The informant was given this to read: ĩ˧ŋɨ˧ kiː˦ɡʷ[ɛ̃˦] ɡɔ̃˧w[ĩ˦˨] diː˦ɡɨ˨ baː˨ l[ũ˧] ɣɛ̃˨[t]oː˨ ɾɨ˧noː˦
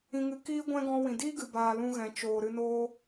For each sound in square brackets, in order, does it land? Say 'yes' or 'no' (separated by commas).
yes, no, yes, no